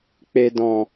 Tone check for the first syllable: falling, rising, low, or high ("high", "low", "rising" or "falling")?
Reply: low